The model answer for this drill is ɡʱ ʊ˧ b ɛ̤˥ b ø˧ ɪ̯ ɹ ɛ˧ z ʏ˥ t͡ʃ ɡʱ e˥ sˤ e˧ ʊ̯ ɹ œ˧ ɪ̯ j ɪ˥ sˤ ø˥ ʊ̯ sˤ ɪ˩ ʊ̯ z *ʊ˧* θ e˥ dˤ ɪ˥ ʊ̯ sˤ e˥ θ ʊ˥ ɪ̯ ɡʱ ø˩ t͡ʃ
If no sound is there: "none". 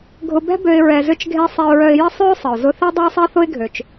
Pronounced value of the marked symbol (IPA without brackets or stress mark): ʊ˧